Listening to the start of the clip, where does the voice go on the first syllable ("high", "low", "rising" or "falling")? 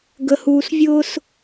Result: low